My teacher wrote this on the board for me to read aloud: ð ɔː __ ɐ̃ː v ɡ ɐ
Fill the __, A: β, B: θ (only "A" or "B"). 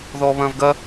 A